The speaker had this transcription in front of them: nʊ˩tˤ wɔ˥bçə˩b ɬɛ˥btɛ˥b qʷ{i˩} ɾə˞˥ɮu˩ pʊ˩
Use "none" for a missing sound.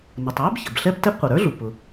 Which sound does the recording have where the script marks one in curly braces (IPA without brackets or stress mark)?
ɪ˩